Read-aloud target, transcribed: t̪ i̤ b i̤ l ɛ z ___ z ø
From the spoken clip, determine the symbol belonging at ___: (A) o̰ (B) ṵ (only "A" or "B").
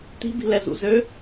B